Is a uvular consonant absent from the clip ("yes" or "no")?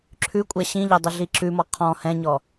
no